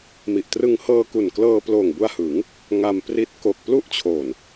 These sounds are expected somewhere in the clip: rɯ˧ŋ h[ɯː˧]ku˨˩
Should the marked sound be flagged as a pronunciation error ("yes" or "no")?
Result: yes